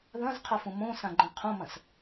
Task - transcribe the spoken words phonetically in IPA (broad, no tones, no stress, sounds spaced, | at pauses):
ð ɐ̃ z qʰ ɐ f ũ m õ s ã ɡ͡ǃ ɐ̃ qʰ õ m ɐ̃ s